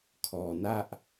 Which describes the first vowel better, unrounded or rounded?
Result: rounded